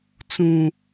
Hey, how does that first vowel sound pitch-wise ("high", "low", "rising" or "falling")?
high